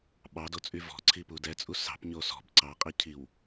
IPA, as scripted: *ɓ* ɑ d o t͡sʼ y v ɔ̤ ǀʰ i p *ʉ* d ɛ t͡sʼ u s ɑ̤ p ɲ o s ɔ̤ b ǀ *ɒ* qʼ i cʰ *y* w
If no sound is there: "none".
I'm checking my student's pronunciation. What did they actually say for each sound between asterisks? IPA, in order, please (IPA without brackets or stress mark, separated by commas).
ɓ, u, ɑ, i